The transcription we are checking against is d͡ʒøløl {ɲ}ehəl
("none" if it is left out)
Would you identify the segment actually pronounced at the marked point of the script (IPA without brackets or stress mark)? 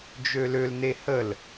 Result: n